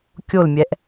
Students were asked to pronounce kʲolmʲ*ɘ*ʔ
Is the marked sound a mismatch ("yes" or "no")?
yes